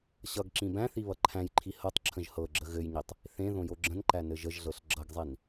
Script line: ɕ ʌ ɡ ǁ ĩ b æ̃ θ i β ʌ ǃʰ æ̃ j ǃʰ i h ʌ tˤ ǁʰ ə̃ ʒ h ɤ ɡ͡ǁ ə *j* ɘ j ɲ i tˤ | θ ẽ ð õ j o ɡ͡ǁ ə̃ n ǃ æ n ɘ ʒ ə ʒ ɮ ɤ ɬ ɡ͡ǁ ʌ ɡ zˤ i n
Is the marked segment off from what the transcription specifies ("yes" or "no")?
yes